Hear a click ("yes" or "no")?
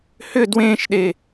no